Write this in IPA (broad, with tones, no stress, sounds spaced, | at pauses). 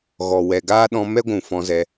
ɣ ɔ˨ w ɛ˨ ɡ aː˦ ɗ ɔ̃˧ m ɛ˦ ɡʷ ũ˨ f ɔ̃˧ z ɛ˧